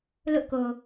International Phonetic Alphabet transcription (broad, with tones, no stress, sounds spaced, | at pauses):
l ʊ˦ ʔ k o˨